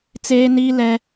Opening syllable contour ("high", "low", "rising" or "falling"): high